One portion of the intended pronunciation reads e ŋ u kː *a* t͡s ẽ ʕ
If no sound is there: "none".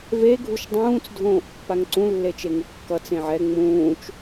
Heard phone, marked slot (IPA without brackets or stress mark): ʌ